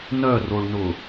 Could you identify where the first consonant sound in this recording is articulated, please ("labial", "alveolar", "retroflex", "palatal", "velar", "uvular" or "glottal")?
alveolar